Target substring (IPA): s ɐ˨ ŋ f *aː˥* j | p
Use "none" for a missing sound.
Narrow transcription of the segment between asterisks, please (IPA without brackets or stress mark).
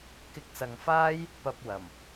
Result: aː˥